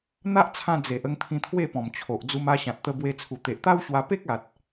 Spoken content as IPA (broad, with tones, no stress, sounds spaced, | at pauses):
n̪ a˦ ʔ t͡sʰ ã˧ d͡z e˨ ʔ ə˧ ŋ t̪ʰ ĩ˧ t̪ʰ w e˥˧ p ɔ̃˨˩ m t͡ɕʰ o˨ ʔ d͡z u˧ m a˧ ɕ ã˨ t̚ t̪ ə˧ b w e˧ t͡sʰ u˨˩ t̪ e˨ ʔ t̪ a˦ w ɕ w a˧ p e˦ k̚ a˨ t̚